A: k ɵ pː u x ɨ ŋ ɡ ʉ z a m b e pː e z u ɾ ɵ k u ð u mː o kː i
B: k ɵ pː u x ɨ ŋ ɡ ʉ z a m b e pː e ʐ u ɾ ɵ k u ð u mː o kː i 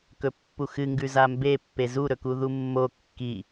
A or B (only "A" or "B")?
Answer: A